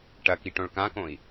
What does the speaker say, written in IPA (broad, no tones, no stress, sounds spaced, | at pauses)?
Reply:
ʈ ɐ k i ʈ õ ɭ k ã k õ i̯